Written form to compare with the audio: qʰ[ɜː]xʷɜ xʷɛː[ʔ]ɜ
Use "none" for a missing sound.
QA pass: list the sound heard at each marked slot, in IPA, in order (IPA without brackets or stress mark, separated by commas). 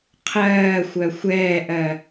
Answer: ɜː, ʔ